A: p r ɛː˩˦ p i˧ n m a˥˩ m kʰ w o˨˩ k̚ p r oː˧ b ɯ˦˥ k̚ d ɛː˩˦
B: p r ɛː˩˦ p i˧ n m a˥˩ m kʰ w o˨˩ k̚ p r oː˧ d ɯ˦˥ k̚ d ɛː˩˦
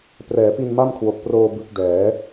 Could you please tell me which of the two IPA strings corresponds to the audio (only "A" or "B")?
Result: A